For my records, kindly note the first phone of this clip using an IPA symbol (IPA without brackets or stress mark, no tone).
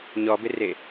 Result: ɲ